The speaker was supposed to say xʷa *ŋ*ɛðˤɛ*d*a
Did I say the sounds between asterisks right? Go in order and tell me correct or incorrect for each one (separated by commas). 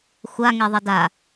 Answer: correct, correct